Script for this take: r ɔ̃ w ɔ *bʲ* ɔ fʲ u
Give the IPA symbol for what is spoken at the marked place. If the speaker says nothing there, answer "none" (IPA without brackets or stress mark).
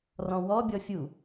bʲ